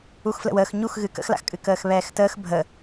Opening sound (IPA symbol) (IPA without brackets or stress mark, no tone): u